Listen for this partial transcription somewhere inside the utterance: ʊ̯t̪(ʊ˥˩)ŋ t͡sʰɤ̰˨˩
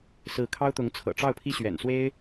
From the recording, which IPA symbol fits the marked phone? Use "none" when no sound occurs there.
ʊ˧˥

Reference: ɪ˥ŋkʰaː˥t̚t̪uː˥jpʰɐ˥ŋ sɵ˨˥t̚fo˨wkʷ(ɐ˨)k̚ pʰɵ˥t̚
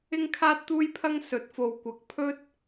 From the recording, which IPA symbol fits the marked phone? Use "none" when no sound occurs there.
ɐ˨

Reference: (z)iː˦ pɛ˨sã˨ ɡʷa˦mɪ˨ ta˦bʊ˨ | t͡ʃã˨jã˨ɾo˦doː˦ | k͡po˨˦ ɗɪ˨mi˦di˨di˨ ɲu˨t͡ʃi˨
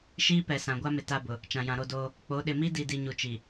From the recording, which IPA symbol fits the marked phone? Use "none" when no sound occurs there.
ʃ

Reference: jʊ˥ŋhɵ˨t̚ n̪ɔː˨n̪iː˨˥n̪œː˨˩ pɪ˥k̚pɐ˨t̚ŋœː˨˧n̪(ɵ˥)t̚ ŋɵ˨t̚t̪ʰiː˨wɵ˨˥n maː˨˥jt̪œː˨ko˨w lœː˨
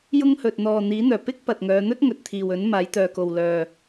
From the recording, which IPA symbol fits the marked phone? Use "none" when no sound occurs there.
ɵ˥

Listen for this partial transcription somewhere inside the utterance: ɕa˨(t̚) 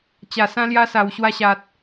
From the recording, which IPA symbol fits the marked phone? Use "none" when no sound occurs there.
t̚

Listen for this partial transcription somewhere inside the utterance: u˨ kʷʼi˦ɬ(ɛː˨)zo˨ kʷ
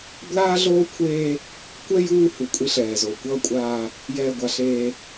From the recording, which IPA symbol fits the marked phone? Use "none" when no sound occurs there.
ɛː˨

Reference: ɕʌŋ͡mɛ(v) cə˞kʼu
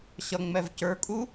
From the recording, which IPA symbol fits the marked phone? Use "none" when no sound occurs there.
v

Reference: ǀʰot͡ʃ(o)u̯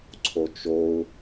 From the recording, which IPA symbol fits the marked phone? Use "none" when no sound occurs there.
o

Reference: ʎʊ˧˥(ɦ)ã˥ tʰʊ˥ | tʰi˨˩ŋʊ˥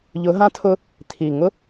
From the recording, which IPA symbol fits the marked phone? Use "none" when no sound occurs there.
ɦ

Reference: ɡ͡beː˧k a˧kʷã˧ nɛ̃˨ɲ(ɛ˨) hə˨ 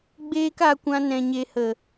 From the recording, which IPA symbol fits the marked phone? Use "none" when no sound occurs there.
e˨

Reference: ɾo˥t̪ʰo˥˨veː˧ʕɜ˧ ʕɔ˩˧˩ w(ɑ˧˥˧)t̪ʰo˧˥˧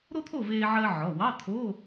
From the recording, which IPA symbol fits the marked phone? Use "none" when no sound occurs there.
ɑ˧˥˧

